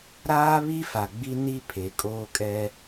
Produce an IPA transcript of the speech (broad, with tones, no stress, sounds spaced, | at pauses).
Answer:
ɾ aː˦ β i˦ f a˨ ɡ͡b i˦ n i˦ pʰ e˨ kʼ oː˦ kʼ ɛ˦